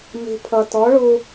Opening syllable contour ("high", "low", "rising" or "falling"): low